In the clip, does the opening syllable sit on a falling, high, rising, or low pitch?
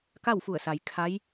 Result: falling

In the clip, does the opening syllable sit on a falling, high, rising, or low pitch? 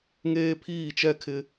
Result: high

